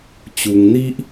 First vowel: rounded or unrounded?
rounded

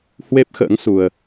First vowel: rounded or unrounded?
unrounded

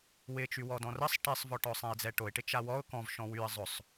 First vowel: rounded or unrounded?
unrounded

